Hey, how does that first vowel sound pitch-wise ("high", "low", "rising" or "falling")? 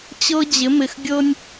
high